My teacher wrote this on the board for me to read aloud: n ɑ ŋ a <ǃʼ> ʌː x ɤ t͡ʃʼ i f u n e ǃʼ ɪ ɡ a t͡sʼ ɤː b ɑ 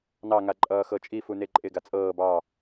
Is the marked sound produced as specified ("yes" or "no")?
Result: yes